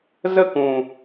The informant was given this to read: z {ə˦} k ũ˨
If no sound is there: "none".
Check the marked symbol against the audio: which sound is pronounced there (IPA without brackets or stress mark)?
ə˦